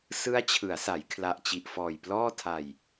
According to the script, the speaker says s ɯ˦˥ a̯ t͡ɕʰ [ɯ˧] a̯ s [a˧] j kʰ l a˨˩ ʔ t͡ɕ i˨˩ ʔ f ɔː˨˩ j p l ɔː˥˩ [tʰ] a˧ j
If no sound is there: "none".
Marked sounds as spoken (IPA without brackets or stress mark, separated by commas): ɯ˩˦, a˩˦, tʰ